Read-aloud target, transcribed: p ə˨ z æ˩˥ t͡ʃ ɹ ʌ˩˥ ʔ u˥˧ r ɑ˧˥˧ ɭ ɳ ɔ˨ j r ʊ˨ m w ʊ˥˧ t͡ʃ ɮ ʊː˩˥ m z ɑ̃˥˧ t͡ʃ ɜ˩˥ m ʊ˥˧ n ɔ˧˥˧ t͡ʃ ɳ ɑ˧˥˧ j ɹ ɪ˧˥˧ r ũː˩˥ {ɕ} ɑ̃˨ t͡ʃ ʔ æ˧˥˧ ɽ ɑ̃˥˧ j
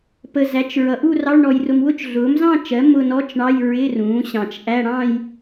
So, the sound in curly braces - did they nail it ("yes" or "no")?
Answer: yes